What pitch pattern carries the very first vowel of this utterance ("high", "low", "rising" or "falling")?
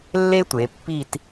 high